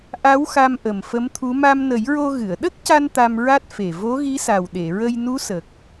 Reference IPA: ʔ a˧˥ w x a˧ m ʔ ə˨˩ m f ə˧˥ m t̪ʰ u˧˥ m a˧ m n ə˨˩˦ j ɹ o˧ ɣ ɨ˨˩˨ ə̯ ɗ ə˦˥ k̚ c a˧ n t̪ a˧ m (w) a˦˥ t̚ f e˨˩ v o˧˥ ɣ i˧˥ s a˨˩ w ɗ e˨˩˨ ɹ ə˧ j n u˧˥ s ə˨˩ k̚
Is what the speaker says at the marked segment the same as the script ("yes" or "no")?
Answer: no